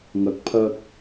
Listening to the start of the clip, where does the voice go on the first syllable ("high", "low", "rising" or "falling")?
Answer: rising